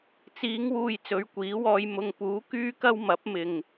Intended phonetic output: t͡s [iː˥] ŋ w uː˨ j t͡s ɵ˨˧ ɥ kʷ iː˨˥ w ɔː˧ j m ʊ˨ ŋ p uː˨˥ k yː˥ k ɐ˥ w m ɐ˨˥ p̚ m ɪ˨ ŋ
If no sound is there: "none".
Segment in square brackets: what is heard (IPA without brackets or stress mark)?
iː˨˧